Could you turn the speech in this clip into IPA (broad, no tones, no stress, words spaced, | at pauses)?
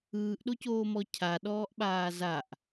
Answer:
ɯːʔɗocoːmɔ cʰaɗɔːʔɓaː zaʔ